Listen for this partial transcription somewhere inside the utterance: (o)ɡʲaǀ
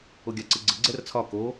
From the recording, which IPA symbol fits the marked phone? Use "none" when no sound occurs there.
o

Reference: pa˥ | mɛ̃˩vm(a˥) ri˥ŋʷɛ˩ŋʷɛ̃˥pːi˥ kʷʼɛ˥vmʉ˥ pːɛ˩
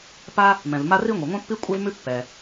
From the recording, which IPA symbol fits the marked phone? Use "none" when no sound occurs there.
a˥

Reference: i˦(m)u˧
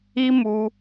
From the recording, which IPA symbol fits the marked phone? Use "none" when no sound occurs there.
m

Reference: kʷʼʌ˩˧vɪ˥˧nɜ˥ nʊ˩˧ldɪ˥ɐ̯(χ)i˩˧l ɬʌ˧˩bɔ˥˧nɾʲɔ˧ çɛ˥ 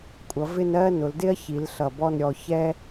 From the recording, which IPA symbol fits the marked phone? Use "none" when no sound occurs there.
ç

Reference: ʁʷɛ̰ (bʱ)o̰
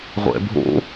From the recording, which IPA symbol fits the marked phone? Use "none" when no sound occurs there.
bʱ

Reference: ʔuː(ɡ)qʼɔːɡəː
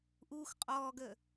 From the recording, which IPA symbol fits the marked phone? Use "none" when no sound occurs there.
x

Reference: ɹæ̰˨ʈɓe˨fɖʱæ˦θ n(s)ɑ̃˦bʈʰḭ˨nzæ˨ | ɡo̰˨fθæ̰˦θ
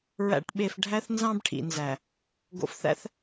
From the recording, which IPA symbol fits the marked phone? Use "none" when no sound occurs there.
z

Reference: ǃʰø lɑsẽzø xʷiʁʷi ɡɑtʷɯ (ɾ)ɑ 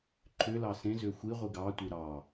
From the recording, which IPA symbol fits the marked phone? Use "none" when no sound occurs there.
ɾ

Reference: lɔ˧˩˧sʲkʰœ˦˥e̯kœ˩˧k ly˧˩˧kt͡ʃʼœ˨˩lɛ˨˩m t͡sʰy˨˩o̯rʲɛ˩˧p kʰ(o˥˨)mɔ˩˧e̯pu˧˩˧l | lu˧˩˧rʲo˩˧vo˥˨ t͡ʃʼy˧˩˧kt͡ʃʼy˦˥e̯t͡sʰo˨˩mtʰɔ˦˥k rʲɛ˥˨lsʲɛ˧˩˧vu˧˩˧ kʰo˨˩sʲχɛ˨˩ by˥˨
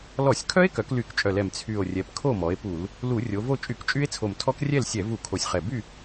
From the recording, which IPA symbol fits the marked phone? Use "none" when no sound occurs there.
o˥˨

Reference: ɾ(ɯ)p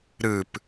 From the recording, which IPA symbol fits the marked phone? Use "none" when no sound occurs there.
ɯ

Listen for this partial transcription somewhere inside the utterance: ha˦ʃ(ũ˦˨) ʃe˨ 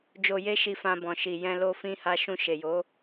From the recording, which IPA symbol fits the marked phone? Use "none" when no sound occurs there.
ũ˦˨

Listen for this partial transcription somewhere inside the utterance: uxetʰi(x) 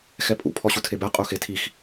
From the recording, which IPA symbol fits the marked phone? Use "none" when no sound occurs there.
x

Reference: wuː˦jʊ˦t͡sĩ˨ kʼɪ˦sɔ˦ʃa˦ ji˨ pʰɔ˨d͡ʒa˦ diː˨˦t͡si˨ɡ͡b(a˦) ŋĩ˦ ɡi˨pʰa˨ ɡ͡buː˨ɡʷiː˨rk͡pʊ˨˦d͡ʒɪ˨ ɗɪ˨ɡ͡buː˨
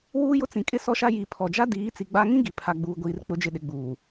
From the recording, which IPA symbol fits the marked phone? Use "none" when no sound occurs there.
a˦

